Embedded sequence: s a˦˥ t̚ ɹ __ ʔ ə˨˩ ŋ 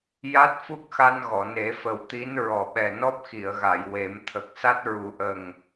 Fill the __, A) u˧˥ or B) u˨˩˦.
B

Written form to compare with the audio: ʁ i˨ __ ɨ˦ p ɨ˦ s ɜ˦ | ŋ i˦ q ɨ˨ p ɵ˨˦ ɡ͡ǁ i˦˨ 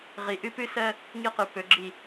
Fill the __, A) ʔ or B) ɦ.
A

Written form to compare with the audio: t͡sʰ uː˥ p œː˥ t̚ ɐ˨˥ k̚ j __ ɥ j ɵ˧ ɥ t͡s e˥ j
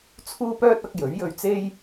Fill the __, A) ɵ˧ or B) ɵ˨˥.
B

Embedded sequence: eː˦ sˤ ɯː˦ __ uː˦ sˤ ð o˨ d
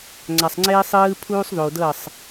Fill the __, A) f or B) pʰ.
B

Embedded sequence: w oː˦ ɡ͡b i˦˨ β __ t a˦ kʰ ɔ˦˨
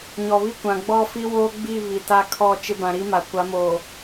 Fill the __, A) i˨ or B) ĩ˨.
A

